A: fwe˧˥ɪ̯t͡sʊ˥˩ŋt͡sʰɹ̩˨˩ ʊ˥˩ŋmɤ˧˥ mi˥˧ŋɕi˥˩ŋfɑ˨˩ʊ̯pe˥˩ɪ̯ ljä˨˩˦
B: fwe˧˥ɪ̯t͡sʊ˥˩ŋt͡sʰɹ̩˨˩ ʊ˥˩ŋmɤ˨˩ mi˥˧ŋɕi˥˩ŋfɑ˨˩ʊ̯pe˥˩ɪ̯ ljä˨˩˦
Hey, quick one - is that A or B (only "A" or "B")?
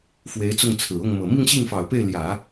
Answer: B